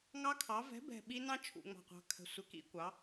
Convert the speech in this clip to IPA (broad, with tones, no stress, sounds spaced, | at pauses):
ŋ ɑ˧˥ kʰ ɑ˩˥ v ɛ̤˩˥ b ɛ̤˨˩ ɓ i˧˥ n ɑ̃˥ t͡ʃʰ ṵ˨˩ ŋ͡m ɑ̤˨˩ qʷ ɑ̤˩˥ kʰ ə̤˨˩ sʷ ɪ˩˥ k ḭ˧˥ kʷ ɑ˩˥